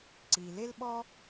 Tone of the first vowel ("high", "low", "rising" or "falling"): low